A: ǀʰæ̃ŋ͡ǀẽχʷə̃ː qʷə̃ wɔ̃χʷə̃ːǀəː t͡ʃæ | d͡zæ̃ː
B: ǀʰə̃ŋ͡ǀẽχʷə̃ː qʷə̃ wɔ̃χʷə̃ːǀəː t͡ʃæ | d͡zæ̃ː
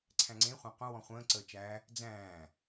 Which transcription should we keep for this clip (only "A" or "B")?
A